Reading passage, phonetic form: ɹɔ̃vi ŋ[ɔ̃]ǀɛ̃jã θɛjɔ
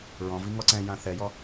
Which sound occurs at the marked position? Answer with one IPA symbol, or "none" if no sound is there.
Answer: ɔ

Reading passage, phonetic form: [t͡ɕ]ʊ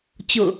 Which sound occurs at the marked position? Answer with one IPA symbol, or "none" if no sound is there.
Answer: t͡ɕ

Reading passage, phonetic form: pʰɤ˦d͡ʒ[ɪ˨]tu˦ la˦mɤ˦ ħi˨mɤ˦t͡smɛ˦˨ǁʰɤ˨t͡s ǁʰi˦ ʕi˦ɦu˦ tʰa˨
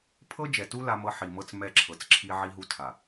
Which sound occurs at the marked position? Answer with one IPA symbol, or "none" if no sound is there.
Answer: ɛ˨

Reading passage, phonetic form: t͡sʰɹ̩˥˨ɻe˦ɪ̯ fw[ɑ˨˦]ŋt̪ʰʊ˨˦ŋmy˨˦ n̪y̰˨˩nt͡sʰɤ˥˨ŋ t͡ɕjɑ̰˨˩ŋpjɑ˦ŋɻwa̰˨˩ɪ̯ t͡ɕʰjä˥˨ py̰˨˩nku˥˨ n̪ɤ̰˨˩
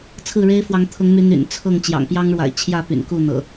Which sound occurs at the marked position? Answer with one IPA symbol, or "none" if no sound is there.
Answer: ɑ˨˦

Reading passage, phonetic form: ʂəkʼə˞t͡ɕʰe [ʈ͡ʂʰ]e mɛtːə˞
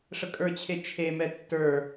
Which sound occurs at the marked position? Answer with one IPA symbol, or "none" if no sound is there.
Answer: t͡ʃʰ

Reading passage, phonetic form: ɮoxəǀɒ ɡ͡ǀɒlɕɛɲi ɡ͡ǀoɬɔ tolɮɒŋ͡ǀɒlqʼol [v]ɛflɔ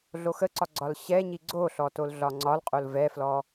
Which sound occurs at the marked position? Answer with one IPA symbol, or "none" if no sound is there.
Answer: v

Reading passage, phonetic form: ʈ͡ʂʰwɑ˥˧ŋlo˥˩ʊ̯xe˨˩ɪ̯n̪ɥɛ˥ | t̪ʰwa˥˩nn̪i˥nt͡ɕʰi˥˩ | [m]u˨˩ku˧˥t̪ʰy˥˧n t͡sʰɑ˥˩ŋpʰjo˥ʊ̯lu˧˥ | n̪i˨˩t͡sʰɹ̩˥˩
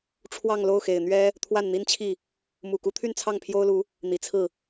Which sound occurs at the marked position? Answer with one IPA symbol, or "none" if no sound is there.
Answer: m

